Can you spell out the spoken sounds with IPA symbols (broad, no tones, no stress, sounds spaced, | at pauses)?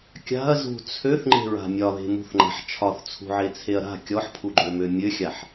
kʲ a̤ ɐ̯ z ṳ t͡sʰ ø θ ŋ͡ǃ e̤ ɹ a̤ mʲ ɒ ð e̤ m ṳ θ ŋ͡ǃ a̤ ħ t͡ʃʰ ɒ θ t͡sʰ ṳ ʕ e t͡sʰ e ɐ̯ ɾ a̤ kʲ ɔ ħ pʰ u ɡ͡ǃ ø m ø mʲ ø xʲ a ħ